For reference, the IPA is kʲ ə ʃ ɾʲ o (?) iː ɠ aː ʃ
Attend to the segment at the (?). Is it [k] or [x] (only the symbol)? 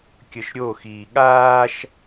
x